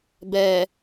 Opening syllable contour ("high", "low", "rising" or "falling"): low